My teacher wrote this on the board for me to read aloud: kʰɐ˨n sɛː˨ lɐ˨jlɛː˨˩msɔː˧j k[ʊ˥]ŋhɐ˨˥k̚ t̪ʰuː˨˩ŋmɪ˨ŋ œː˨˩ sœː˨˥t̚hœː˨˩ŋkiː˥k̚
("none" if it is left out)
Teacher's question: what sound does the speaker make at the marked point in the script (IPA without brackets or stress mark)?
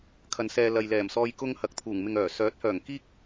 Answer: ʊ˥